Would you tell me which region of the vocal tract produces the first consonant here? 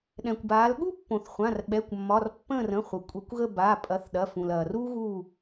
tongue tip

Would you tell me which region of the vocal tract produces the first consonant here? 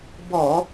lips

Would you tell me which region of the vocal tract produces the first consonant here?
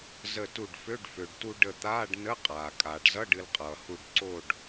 tongue tip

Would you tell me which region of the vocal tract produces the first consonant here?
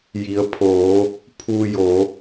palate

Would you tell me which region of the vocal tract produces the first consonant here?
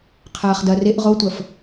uvula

